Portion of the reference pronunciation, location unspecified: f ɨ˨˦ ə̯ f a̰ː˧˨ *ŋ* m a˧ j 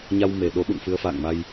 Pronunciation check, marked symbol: correct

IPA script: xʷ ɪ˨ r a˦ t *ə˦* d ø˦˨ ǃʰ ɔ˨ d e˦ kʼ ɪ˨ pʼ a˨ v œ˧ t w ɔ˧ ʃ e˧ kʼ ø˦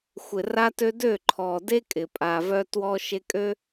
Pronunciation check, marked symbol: incorrect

